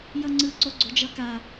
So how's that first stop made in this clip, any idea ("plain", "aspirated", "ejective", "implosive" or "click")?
click